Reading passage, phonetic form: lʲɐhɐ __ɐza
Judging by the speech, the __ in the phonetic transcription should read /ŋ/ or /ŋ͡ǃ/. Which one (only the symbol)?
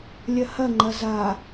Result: ŋ͡ǃ